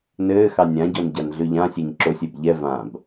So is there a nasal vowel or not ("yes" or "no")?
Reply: yes